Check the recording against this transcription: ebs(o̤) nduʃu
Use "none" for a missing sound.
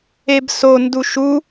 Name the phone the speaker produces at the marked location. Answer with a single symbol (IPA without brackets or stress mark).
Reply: o